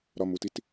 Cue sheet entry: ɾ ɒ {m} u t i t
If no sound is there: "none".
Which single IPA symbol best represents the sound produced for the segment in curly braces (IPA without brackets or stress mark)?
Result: m